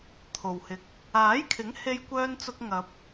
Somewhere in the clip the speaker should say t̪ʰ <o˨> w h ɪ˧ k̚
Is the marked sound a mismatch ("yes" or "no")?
no